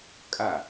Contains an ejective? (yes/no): yes